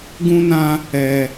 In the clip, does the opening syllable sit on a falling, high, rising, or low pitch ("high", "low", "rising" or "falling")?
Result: high